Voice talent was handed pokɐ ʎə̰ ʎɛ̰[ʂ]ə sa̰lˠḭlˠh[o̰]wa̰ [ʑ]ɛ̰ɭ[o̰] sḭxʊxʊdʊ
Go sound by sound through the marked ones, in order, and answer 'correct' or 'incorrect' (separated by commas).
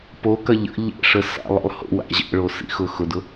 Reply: correct, correct, correct, incorrect